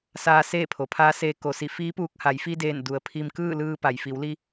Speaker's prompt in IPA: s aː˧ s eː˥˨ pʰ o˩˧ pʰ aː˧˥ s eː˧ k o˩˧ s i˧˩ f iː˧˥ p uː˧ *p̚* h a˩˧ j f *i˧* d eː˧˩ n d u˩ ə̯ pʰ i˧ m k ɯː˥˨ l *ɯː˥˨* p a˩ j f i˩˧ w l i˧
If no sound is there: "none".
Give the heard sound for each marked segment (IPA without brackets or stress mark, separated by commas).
k̚, i˧, ɯː˧